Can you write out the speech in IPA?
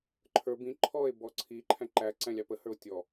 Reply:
ǃʰ ə˞ b ĩ ǃʰ ɔ e̯ b ɔ ǀʰ i ǃʰ æ̃ ǃ æ ǀ æ̃ lʲ ɑ p ə h ə˞ o̯ tʲ ɔ

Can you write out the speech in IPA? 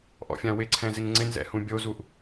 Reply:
ʔ ɔ̰ fʲ ã w ɪ ǀʰ ɛ̃ z ɪ ŋ ŋ͡ǀ ɪ n z ɛ̰ h ũ bʲ o z u ʔ

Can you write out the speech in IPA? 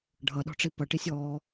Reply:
ɖʱ ʌ ɗ ɔ̤ ʈ͡ʂ i p ʌ ʈ i sʲ ɔː

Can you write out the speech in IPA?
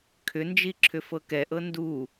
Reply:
kʰ ʏ n d͡ʒ i ǁʰ ʏ f ɤ k ɛ ʔ ɤ n d u

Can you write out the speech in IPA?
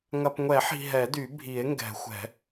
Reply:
ŋ ɐ˨ p ŋʷ ɛ˨˩˦ ħ i̤˨ ɦ ɛ˨˩˦ d y˨˩˦ bʱ i˨˩˦ e̯ ŋ ɡ ɛ̤˨˩˦ xʷ ɛ̤˨˩˦

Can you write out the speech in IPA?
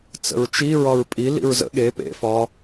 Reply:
t͡s ə̰ ɹ t͡ʃ i ɹ ɒ ɹ pʼ i l ḭ ɹ z ə̰ ɠ e p ḛ f ɒ

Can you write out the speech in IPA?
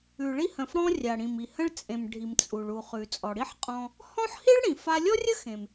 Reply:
ʉ˩ ɭ i˧ h ə̃˩ f ɽ ɔ̃˧ rʲ a˩ ɽ ĩ˩ m i˩ h ə̃˧ ɭ t͡sʼ ẽ˩ m ɖʱ i˩ m t͡sʼ u˩ ɭ u˩ χ ʉ˩ t͡sʼ ɔ˩ ɽ i˥ ħ qʼ ɔ̃˧ | h ɔ̃˥ ħ h i˥ ɭ ɽ ĩ˩ f a˧ lʲ ɔ˥ rʲ ə˥ x ẽ˩ m

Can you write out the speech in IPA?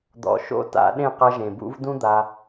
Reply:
d̪ ɔ̰˨ ʃ o̰˧ t a̰˧ ɗ ẽ˦˨ q ɐ˧ ʒ ẽ˨ b ṵ˦ v d ũ˦ d̪ a˧

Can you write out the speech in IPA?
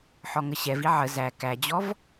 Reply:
ħ ɔ ŋ ə ɕ ɛ v i ʕ ə z æ k æ d͡ʑ ɔ v

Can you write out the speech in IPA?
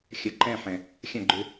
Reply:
xʲ ɐ˨ ǃ ɛ̃˦˨ ħ ɛ̃˨ | xʲ ã˦˨ ɡ͡ǃ ø˧

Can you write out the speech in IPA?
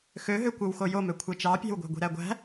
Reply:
x ø ɦ ø kʷ ɯ w x o j o m ø kʷʰ e t͡ʃ ɑ pʲ æ̤ w ɡʷ æ̤ ɡʷ i̤ ɾ æ ɡʷ æ̤

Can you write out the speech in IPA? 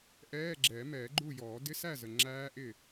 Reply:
ʔ ɛː˧˥˧ ɡ͡ǁ ɛː˨˩˦ m ɛː˨˩˦ ɡ͡ǃ u˥˨ j ɔː˨˩˦ d ɪ˧˥˧ s æ˥˨ z ə˨ ŋ͡ǁ æː˦˥ ʔ ɪ˥˨

